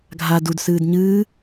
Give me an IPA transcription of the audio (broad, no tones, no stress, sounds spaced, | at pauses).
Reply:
ɡʱ a d u d s ɨː d ɲ ɨː